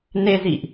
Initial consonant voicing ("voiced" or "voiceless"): voiced